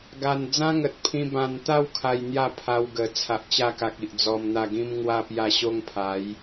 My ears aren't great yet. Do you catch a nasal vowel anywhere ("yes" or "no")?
yes